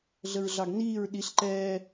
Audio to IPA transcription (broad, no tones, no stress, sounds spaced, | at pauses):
ɮ ə ɹ ɮ ɑ ɡ n iː ɹ ɗ i ɬ ǃ ɛː